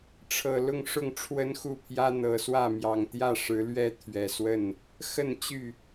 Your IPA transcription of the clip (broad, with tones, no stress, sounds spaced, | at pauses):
ʈ͡ʂʰ ɤ˨˩ l ʊ˥˨ ŋ ʂ ʊ˥˨ ŋ ʈ͡ʂʰ w ə˦ n x u˥˨ pʰ j ä˦ n̪ ɤ˨˩ s w ä˥˨ m j ɑ˨˩ ŋ t̪ j ä˥˨ ʂ ɻ̩˨˦ l ɥ ɛ˦ t̪ʰ ɥ ɛ˨˩ s w ə˥˨ n | x ə˥˨ n t͡ɕ y˥˨